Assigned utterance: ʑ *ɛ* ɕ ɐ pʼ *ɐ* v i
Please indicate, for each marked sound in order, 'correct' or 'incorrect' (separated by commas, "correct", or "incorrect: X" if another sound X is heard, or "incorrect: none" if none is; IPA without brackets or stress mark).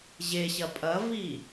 incorrect: e, correct